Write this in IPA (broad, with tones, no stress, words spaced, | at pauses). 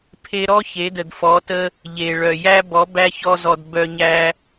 pʰe˧ ɾɔ˦ çe˨˦də˨dfɔ˨˦tə˦ | ʎe˨ ɭœ˨jæ˦ bɔ˨˦bæ˦çɔ˧zɔ˨d bœ˧ɲæ˦